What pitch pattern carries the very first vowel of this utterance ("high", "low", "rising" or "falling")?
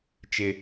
high